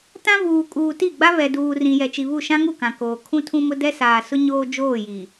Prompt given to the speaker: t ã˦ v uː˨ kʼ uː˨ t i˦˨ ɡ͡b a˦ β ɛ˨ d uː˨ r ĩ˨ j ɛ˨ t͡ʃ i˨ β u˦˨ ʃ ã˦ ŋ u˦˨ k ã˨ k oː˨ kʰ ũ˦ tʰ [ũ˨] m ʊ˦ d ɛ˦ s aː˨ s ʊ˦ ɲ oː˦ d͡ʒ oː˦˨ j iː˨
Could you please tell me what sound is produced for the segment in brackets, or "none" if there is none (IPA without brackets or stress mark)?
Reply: ũ˦